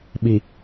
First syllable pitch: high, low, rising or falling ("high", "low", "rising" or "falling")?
low